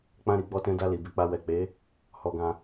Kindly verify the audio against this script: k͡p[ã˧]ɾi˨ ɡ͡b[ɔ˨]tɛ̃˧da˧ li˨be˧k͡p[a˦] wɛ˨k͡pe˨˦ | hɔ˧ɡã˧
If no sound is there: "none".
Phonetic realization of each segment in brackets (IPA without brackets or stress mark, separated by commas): ã˧, ɔ˧, a˧